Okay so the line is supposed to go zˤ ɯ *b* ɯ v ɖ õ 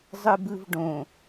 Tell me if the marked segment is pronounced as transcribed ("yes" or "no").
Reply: yes